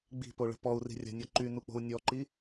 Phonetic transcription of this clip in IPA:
ɡ͡b i̤ p o ɭ ə̤ p ɔ u̯ r i̤ rʲ a̤ nʲ ɔ ǃ y n u k͡p o̤ u̯ nʲ ɔ ǃ i

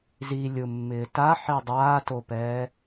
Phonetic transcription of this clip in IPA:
z i lʲ ʊ mː ɪː t a ħ i dˤ aː t o p ɛː

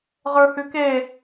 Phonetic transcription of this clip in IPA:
ʁ ə˞ h ʉ k e

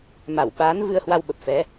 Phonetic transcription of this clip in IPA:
m a˧˩ w ɓ aː˨˦ n v ɨ˧ ə̯ h w a˧ w ɓ ə˨˩ p̚ f ɛ˨˦

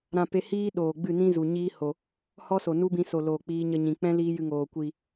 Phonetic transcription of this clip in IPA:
ɾ ã˧ p e˧ h iː˦ ɗ oː˨ ɡ͡b ɨ˦˨ n ĩ˦ z u˨ ɲ iː˦ h o˨ | h ɔ˦ s o˨ n u˦ b ĩ˧ s o˨ l oː˨ k͡p iː˧ ɲ ə˧ ɲ ĩ˨ k͡p ɛ̃˦ l iː˦ j ɨ˧ ŋ oː˨ kʷ i˨

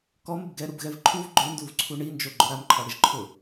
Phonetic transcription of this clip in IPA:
k ɔ m ɪ b ɡ ɛ ɾ u b ɣ ɛ v ǃʰ u v ɡ͡ǃ ʊ n d u v ǀʰ u ɳ i n d͡ʒ o ɡ͡ǃ ʊ ɾ a m ǃʰ ɔ ɽ ɪ ʒ ǃʰ ʊ

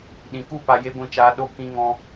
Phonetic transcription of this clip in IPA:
ɗ ĩ˨ k u˦˨ p a˧ j e˦ ɡʷ ĩ˦˨ t͡ʃ aː˦ ɗ o˦ k ĩ˦ ŋ ɔ̃˦

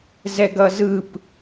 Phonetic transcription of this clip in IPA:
z ɛ ɡ ʌ z ɯ p

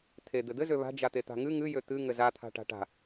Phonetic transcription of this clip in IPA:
t̪ʰ e d̪ ɘ d̪ ɘ z ø β a̤ d͡ʒ a t̪ e t̪ a̤ ŋ ɨ ŋ ɨ j ø t̪ ɨ ŋ ɘ z a t̪ʰ a̤ ʈ a̤ ʈ a̤

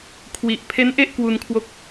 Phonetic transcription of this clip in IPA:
kʰ w i˨˩ ʔ pʰ e˦˥ n ʔ e˥˩ ʔ k w u˧ n kʰ w o˦˥ k̚

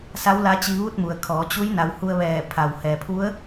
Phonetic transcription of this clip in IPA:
s a˧˥ w l a˧˥ t͡ɕ i˧ ʋ u˥˨ t̚ m u˩ ə̯ kʰ ɔː˩˧ t͡ɕ u˧˥ j n a˩˧ w h u˧ ə̯ ʋ ɛː˧˩ pʰ a˩ w h ɛː˩ pʰ u˧˥ ə̯

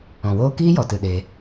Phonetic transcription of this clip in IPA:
ɔ̃˨ w oː˦ k iː˦ j ɔ˨ t ɨ˨ ɗ eː˧

